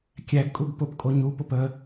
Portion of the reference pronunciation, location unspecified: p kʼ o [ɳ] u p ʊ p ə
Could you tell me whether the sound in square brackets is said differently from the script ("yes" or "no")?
yes